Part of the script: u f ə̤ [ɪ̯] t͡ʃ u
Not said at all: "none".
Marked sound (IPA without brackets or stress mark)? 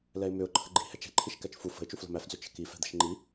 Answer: ɪ̯